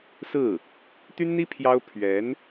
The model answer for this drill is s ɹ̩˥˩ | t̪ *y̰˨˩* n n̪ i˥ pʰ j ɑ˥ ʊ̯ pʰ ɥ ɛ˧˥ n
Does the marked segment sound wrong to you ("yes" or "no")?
yes